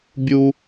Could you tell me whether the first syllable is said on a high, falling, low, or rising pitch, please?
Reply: high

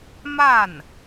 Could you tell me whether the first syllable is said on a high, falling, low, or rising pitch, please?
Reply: falling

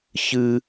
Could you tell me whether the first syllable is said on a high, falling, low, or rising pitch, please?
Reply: high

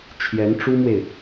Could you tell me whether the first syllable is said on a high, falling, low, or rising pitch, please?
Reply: rising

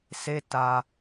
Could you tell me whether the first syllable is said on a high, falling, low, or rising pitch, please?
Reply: low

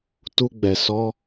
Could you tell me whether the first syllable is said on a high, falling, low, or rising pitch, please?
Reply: high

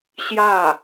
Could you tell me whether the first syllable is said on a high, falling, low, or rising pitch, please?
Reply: falling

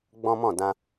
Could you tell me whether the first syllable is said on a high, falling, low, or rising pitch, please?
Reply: high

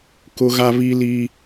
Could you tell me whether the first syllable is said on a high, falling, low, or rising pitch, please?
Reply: high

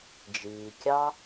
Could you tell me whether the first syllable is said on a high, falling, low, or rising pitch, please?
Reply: low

